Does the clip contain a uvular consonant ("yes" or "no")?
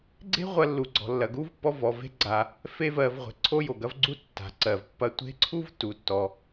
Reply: yes